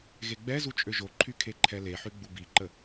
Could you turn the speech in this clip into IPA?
ɣ e ɡ͡b ɛ z u t͡ʃʼ ø ʒ o ǃʰ y kʰ e ǃʰ ɛ l e ħ y ɡ͡b u b i ǃ ə

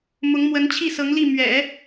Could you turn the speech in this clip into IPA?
m ʊ˧˥ ŋ m w ə˧˥ n t͡ɕʰ i˥˩ s ɤ˧˥ ŋ l i˥˩ m ɥ ɛ̰˨˩˦

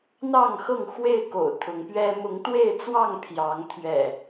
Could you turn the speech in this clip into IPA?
n̪ ɑ˥˨ ŋ x ɤ˥˨ ŋ x w e˥˨ ɪ̯ k o̰˨˩ ʊ̯ t̪ʰ ʊ˨˦ ŋ p ɥ ɛ˦ m ʊ˨˦ ŋ t̪ w e˥˨ ɪ̯ t͡s w ɑ˥˨ ŋ pʰ j ɑ˨˦ ŋ t̪ʰ ɥ ɛ̰˨˩

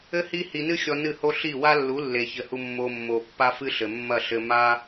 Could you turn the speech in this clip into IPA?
ɘ˦ h i˦ h i˧ n ɨ˦ xʲ ɔ˧ n ɨ˦˨ h o˦ ɬ i˦˨ w a˦ lː u˨˦ lː e˨ ç ɘ˨ h u˧ mː o˧ mː o˨ pː a˦ f ɨ˦ ɬ ɘ˨ mː ɐ˦˨ ɬ ɘ˧ m a˦

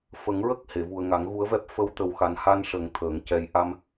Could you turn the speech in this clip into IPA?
f ə˨˩˦ ŋ ɹ ə˦˥ k̚ h e˨˩˨ v u˨˩ ə̯ ŋ a˨˩˦ ŋ ɣ u˧˥ ə̯ v ɛ˦˥ p̚ f ə˧˥ w t̪ ə˨˩ w x a˨˩ n h a˧ n ʂ ə˨˩˦ ŋ t̪ʰ əː˨˩˦ ŋ c ɛ˧˥ j ʔ a˧ m

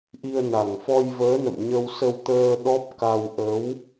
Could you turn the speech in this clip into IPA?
ʔ i˧ ə̯ n a˨˩ ŋ f ɔ˧ j v əː˨˦ n ə̰˧˨ m ɲ ə˧ w s ə˧ w t̪ əː˧ ɗ ɔ˦˥ p̚ k a˧ w ʔ ə˨˦ w

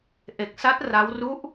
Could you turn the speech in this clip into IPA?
ʔ e˨˩ k̚ s a˦˥ t̚ r a˦˥ w r u˦˥ ʔ

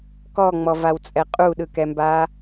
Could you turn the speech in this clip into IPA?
k ɔ ŋ͡m ɔ v a w t͡sʼ ɛ qʼ u ɗ ɯ k ɛ m b a

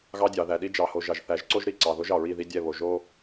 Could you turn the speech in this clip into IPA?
ɣ ɑ˦ dʲ ɑ˨ ð æ˨ ɗ i˦ d͡ʒ ɑ˨ h o˨ ʒ ɑ˨ ʒ θ æ˨˦ ʒ ǀ o˦ ʒ ɾ i˨˦ ǀ ɑ˨ ð o˦ ʒ ɑ˨ ɹ i˦˨ ð i˦ dʲ ɛ˦˨ β o˨ ʒ o˦

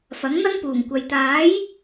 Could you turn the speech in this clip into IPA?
f ɐ˨˥ ŋ n̪ ɐ˥ ŋ p uː˨˩ ŋ kʷ ɐ˨ j t̪ aː˨˥ j

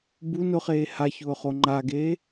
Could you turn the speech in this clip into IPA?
b u n ʊ χ eː h a ç ʊː χ o ŋ͡ǃ a ɡ eː

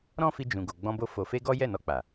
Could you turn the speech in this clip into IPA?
ɾ ɔ̃˦ f i˧ d͡ʒ ũ˨ ɡ o˨ ɡ͡b ɔ̃˧ b o˧ f o˨ f e˧ ɡ ɔ˦ j ɛ˦˨ n ɔ˧ k͡p a˨

